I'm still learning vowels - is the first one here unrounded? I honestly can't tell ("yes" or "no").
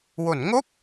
no